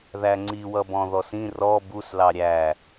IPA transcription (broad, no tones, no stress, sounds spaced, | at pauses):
ð æ ŋ͡ǀ i w ʌ b ɔ̃ ð ɔ s ĩ r ɔ b u s l ɑ ɾʲ æ